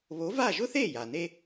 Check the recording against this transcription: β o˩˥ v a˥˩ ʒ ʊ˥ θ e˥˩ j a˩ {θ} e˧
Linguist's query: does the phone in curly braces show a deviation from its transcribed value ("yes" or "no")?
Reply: yes